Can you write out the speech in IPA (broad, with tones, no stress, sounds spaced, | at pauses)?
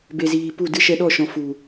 b e˨ z iː˨ p u˦˨ d ɨ˦˨ ʃ ɛ˧ ɗ ɔ˦˨ ʃ ɔ̃˨ f u˨